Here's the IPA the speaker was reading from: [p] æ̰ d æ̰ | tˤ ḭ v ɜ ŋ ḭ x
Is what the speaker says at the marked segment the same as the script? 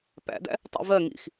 yes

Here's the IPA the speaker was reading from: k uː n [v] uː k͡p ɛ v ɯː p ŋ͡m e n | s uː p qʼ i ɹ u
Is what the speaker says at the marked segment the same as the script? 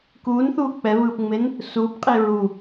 no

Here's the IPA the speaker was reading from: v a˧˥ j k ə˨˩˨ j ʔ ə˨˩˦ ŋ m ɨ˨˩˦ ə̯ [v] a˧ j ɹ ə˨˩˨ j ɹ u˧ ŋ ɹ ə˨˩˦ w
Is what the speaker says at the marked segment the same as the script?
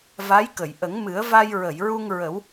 yes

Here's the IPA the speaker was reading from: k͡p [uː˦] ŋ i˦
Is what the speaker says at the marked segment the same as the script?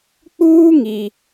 yes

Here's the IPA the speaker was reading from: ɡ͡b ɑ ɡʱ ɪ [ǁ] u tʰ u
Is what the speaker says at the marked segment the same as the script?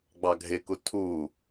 no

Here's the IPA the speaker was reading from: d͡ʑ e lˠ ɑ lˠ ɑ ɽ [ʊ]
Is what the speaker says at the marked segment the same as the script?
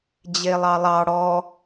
no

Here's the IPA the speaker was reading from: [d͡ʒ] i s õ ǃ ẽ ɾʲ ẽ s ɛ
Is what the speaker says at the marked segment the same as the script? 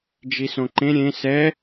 yes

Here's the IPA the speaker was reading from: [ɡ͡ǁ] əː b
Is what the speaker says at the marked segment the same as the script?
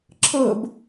no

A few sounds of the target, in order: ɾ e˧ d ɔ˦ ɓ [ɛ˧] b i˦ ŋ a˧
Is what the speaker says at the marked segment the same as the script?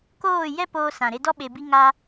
no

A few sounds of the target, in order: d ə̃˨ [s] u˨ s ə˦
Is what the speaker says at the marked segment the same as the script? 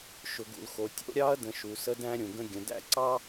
no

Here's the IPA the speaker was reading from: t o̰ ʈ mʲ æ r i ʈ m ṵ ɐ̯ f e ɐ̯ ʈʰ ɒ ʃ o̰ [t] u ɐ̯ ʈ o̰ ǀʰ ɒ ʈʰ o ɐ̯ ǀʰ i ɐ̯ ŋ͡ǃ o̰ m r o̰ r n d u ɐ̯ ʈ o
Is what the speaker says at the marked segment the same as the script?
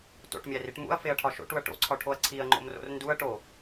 no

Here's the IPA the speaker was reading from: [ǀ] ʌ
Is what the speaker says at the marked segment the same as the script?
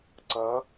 yes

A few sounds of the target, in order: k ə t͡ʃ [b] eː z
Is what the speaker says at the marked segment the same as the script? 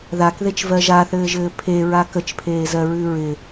no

